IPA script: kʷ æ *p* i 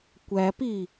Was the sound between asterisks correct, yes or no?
yes